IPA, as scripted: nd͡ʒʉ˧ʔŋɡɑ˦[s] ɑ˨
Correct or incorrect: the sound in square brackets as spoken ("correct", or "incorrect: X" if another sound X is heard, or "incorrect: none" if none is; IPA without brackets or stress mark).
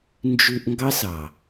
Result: correct